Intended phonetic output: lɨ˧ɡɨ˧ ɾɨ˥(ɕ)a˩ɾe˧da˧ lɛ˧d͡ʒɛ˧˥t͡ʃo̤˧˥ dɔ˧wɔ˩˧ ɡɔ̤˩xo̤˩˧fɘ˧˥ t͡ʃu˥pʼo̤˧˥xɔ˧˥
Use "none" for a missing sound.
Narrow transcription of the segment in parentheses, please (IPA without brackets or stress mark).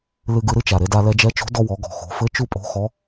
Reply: t͡ʃ